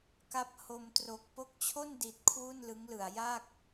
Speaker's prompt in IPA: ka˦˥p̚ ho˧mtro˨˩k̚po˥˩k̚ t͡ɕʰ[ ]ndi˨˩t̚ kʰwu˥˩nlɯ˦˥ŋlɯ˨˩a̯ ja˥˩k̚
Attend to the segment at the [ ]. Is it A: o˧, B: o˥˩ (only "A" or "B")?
B